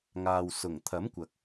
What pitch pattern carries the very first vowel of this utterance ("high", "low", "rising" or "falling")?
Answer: low